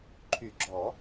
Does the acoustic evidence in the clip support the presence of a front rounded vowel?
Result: yes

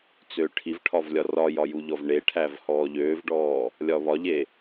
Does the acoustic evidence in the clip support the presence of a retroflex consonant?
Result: yes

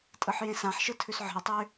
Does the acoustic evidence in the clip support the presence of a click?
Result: no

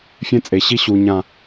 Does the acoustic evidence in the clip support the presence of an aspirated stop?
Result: no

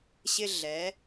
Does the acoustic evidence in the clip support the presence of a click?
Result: no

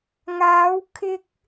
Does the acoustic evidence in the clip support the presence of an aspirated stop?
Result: yes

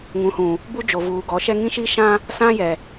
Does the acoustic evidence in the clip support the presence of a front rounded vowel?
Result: no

